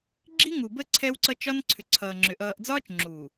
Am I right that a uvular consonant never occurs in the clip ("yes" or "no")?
yes